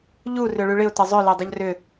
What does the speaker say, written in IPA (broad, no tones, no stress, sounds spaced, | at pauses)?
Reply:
ʎ u r ʏ ɭ y ɭ ɪ ʊ̯ t ə zˤ ʏ l e dˤ ə ʎ r ʏ